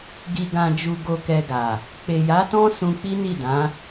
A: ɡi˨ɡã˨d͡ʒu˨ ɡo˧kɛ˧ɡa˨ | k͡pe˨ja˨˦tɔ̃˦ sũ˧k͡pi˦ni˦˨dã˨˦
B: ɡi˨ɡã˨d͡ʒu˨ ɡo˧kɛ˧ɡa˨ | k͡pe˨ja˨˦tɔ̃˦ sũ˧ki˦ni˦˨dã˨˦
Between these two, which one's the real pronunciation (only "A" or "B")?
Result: A